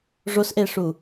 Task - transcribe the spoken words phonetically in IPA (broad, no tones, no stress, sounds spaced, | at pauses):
ʐ o s ʔ e ʂ u